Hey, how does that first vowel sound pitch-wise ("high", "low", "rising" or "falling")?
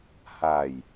low